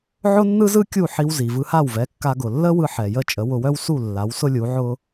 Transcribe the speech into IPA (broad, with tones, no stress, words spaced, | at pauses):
ʕʊ˥nːɯ˥zɯ˥ kʲu˥˩ħi˧w zi˩vɯ˧ha˥˩wvɛ˩˥ kːa˧ɡʊ˩ lːə˥wɯ˧ ħɛ˩jə˥˩t͡ʃʼə˩˥ wʊ˧wœ˥w su˥˩ lːa˩˥wsʊ˥lʲu˩˥ʕʊ˥